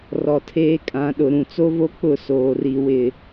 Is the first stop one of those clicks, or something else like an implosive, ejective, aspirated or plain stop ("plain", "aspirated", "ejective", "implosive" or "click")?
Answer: aspirated